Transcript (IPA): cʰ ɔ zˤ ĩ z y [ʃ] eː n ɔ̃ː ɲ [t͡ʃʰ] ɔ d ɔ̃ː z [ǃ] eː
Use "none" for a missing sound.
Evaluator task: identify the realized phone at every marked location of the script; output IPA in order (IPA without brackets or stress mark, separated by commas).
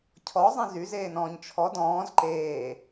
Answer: z, t͡ʃʰ, ǃ